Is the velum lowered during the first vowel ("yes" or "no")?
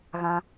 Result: yes